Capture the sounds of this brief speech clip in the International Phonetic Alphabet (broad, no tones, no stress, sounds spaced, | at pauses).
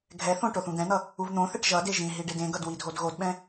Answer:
ɡʱ ɛ θ õ ʈ o θ ũ d̪ ɛ̃ n̪ ʌ | u v n̪ õ θ ɛ ʈ ʒ ʌ d e ʒ ĩ ɦ i ɖ e d ẽ ɡ ʌ d w i dʱ o d ɣ o d ɓ ɛ̃